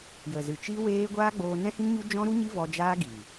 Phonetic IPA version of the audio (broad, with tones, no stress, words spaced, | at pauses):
jə˨zɨ˨t͡ʃi˦ weː˦ ɡʷaː˦ɡ͡boː˧ nɛ̃˦hĩ˦ŋɲu˦ d͡ʒɔ̃˦ɾu˦ɲi˦vɔ˧ d͡ʒaː˦ɡiː˨